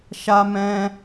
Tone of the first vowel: high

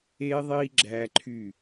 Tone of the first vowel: high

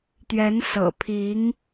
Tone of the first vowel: rising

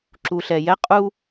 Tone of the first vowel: low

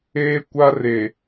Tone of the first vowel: high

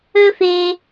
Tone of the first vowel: high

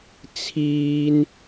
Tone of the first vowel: high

